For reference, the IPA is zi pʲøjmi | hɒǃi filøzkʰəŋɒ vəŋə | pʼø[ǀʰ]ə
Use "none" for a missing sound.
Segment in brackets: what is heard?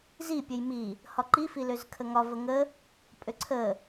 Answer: ǀʰ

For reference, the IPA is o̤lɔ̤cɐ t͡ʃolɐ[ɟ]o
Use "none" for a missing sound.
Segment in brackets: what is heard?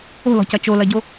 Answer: ɟ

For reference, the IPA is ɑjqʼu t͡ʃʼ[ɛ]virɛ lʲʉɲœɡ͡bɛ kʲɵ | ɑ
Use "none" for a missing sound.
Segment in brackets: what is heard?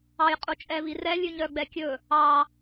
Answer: ɛ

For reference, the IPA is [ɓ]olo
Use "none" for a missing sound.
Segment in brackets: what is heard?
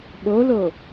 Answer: ɓ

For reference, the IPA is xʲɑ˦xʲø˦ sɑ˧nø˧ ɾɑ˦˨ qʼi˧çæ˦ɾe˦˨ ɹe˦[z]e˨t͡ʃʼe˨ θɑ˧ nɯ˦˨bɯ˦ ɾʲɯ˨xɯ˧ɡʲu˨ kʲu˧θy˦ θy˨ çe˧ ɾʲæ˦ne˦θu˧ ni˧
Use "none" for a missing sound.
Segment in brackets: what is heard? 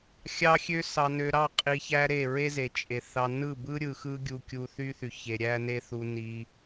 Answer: z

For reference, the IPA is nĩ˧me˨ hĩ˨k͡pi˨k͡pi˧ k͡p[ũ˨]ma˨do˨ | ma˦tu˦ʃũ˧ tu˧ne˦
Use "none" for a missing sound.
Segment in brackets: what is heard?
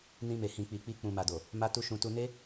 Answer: ũ˨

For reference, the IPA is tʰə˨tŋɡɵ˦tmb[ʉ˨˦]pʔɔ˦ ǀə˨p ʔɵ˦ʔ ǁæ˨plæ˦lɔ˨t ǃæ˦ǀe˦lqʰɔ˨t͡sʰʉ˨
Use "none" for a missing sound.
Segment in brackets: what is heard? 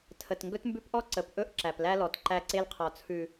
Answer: ʉ˦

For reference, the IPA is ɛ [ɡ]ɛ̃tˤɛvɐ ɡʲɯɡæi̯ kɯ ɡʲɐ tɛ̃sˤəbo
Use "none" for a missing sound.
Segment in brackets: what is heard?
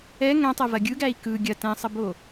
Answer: ŋ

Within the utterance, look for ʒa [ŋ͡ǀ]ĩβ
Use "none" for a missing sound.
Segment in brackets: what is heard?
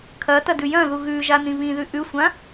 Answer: n̪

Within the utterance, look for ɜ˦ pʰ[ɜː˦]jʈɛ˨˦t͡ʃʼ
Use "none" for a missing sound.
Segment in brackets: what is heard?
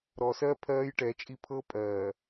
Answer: ɜː˦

